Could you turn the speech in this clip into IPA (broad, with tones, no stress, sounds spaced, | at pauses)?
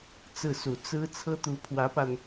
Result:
t͡s ɹ̩˥˩ s u˨˩ t͡s ɹ̩˥ t͡sʰ ɤ˥ t̪ u˧˥ pʰ w ä˧˥ p a˧ n